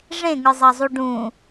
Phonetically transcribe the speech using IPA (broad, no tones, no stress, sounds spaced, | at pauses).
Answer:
ʐ ẽ ŋ ɯ zˤ ɑ zˤ u ɖ ũ